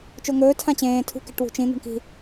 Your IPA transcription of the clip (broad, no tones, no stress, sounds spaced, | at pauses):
t͡ʃ o ŋ ɵː tʰ ã t͡ɕ ẽː tʰ ṳ k e̤ ʈ w ṳ t͡ʃ ĩ n̪ o̤ ɳ k i̤